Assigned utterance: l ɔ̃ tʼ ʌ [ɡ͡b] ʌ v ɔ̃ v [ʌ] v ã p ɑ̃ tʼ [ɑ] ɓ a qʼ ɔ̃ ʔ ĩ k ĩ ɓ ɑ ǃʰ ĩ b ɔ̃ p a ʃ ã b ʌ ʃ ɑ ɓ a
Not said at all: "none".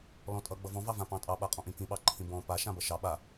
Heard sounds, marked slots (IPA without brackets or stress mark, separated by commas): ɡ͡b, ɑ, ɑ